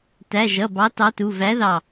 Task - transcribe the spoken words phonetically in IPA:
t æ˩˧˩ ʒ ʌ˩˧˩ b ɑ˨˥ t ɑ˨˥ t u˩˧˩ v æ˨˥ ð ɑ˧˩

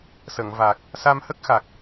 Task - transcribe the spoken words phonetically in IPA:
s ə˨˩˨ ŋ v a˨˩ k̚ | s a˧ m h ə˦˥ k̚ x a˨˩ k̚

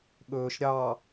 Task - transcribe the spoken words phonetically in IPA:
ɠ ɵː ʃ ɾʲ ɑ

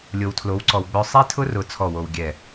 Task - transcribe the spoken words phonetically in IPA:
lʲ o˨ w tʰ l o˨˦ w ǀ ɔ˨ w ɡ͡b œ˦ sˤ i˦ tʰ ʊ˦ r ʊ˨ t͡sʰ ɔ˦˨ w o˨ w ɡʲ ɛ˦˨

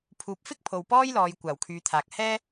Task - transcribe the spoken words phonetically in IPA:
pʰ uː˨ p̚ f ɪ˥ k̚ pʰ o˨ w p ɔː˥ j l ɔː˨˧ j kʷ aː˨˩ w kʰ yː˨˧ t̪ʰ aː˨ k̚ h ɛː˥

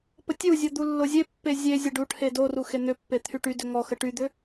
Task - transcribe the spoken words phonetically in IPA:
p ə tʲ u zʲ ɔ d̪ u lː o zʲ e pː e zʲ e zʲ ə ɖ u ʈʰ e d o r u x e n̪ ʏ pː e t̪ʰ y ʈ y d ʏ ŋ ɔ x ə ʈ y d̪ ʏ

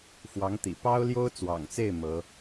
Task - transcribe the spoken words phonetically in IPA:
f w ɑ˧˥ ŋ t̪ ḭ˨˩ p ɑ˥ ʊ̯ l j o˥ ʊ̯ t͡s w ɑ̰˨˩ ŋ t͡s e˥˩ ɪ̯ m ɤ˧˥

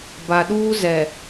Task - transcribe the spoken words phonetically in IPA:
b a˨ ɗ uː˦ z ɛ˨

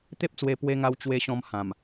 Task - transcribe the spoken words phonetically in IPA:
t̪ e˦ p̚ t͡s w e˧ p w e˧ ŋ a˧ w t͡ɕ w e˧ ɕ ɔ̃˧ m h ã˨˩ m

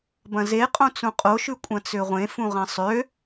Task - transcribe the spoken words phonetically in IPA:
b ɐ̃ z e qʼ õ t͡s ũ qʼ o ʃ ʉ kʷʼ ɐ̃ t͡s ø ʁʷ ẽ f ũ ʁ ɐ̃ sˤ ø

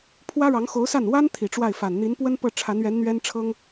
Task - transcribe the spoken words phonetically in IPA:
pʰ w ä˥ ɻ ɑ˧˥ ŋ x o˧˥ ʊ̯ s a˥˩ n w a˥ n t̪ʰ i˨˩ ʈ͡ʂ w a˥˩ ɪ̯ f a˨˩ n n̪ i˧˥ n p w ə˥ n p ɤ˥˩ ʈ͡ʂʰ a˧˥ n ɥ ɛ˧˥ n n̪ ɥ ɛ˥ n ʈ͡ʂʰ ɤ˥ ŋ

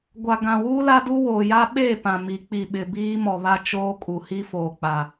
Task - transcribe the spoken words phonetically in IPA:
ɡʷ a˨ ɡ ã˨ w uː˦ l a˦ d u˦ w oː˨ j a˦ ɓ eː˦˨ p ã˨ m i˨˦ k͡p i˨ ɓ ɪ˨ b iː˦ m ɔ˨ β a˦ t͡ʃ oː˦ kʼ u˨ h i˦ f oː˨ k͡p a˨

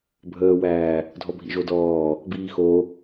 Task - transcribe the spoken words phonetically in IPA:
bʱ əː w æː | dʱ ɔ bʱ ḭ ʒ o d ɔː | b iː x o

